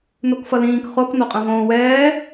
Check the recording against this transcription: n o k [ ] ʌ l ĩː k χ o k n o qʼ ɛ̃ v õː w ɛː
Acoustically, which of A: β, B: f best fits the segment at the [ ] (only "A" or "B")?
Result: B